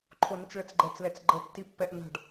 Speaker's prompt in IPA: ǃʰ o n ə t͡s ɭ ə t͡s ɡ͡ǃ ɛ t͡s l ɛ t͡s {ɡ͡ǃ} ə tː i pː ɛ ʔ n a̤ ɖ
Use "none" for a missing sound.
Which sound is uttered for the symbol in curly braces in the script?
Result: ɡ͡ǃ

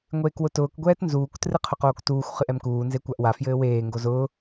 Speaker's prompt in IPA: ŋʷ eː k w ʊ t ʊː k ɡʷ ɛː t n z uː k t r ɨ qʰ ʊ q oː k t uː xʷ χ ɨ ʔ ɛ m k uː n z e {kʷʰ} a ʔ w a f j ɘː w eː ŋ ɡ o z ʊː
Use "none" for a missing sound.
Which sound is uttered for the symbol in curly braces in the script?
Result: kʷ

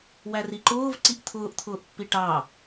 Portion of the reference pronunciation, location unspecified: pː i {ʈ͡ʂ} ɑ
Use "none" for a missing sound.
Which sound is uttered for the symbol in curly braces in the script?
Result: ʈ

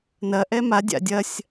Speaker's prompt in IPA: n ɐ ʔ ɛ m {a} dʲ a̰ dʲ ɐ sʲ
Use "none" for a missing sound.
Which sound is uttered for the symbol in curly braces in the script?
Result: a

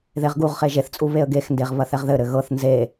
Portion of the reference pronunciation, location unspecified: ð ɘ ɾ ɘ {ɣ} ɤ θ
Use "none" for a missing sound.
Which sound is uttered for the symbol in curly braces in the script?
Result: ɣ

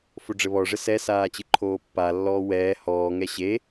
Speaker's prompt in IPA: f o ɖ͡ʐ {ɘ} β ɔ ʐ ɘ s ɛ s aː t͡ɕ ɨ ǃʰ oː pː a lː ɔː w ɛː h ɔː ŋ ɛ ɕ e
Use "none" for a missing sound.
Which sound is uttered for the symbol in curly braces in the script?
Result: ɘ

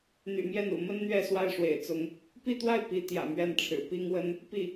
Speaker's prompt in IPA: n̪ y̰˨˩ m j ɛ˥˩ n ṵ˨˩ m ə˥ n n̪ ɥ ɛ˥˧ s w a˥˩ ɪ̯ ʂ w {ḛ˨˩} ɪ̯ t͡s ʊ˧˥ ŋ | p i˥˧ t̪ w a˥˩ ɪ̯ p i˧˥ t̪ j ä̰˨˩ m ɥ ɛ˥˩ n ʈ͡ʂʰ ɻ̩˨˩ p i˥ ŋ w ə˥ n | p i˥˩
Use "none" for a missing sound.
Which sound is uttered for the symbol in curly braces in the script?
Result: ḛ˨˩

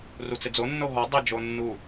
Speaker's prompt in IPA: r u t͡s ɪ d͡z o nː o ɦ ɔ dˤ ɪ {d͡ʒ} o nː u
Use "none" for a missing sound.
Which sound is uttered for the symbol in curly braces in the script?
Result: d͡ʒ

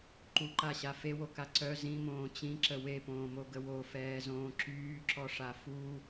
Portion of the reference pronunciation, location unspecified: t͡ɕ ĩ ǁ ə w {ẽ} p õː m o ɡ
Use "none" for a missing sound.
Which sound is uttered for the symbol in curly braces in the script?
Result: e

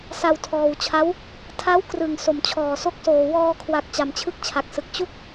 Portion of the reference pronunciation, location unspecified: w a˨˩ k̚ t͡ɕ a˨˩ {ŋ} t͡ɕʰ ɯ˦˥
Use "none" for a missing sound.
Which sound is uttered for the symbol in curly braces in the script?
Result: m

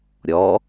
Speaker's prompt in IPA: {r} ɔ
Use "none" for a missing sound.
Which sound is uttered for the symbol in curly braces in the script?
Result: ɾʲ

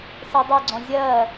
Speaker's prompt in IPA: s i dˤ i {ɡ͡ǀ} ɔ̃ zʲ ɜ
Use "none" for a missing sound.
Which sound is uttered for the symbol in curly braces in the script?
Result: ɡ͡ǀ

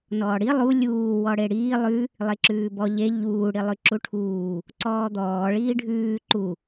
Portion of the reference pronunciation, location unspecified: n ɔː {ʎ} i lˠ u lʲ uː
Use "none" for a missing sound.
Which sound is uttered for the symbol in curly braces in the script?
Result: ɽ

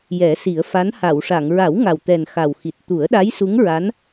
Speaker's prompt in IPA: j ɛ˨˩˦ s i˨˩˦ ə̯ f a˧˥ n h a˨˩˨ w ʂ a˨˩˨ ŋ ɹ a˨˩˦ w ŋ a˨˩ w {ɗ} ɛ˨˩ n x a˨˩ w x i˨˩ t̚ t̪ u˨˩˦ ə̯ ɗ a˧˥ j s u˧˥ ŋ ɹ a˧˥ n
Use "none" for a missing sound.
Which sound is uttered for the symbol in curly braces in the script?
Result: t̪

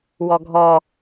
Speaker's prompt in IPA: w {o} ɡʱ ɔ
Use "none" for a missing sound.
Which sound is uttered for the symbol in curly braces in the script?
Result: ɔ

